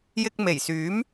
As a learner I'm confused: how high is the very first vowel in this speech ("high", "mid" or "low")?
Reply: high